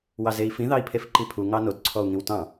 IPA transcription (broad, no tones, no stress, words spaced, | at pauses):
wɑzei̯fĩ ðɑi̯pʰefǃipʰu ŋɑnod ǀʰɔu̯ŋĩwtɑ̃